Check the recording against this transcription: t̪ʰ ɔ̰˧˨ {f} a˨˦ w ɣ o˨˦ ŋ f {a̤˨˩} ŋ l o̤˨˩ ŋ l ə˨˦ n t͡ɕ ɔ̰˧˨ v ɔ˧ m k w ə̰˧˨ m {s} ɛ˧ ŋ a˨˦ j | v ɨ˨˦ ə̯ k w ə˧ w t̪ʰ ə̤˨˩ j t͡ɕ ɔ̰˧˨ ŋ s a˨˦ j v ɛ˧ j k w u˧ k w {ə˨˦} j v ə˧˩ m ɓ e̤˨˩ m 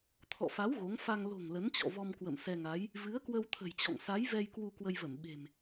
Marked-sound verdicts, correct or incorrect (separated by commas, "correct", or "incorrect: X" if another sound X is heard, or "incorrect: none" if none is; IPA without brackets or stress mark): correct, incorrect: a˧, correct, incorrect: ə˧